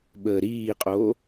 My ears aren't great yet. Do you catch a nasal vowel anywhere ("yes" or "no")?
no